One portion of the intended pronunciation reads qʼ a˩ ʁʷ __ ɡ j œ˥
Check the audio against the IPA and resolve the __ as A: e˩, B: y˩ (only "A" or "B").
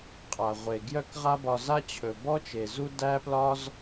A